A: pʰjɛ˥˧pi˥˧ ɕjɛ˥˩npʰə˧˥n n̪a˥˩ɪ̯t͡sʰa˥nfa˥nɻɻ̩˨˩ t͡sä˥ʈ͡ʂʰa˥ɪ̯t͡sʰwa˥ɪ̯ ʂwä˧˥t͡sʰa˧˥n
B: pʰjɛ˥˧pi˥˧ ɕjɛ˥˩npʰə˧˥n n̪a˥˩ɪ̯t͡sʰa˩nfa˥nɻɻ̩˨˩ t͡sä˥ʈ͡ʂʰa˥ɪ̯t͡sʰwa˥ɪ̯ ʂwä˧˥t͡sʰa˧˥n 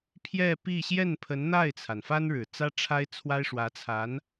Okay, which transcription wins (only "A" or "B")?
B